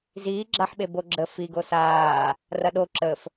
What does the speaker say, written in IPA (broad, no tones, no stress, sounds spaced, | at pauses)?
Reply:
z iː ɡ͡ǁ a ħ ɓ e b o ɡ͡ǁ ə f i ɡ o s aː | r ɐ ɗ o ǁ ə f